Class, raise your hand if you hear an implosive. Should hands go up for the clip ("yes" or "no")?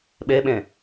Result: yes